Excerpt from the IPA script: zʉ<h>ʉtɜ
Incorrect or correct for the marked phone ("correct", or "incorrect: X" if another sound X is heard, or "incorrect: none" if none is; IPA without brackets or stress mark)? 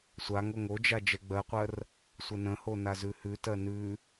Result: correct